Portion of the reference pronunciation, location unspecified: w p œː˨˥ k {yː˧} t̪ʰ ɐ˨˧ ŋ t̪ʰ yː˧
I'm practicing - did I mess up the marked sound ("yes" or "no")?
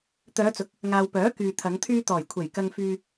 yes